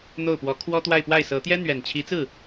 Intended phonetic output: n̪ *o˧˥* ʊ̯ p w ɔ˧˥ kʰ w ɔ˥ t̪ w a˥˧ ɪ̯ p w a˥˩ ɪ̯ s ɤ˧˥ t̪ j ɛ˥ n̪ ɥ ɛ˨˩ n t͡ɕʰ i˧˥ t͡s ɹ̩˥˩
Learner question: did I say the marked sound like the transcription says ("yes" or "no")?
no